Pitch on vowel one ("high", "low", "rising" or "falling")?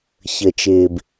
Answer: low